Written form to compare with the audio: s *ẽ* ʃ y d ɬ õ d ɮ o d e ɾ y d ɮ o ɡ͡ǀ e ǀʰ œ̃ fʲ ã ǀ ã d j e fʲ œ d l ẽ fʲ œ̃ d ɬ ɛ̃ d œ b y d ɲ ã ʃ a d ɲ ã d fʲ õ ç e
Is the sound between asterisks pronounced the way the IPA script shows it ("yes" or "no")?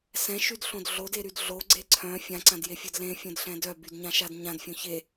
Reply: no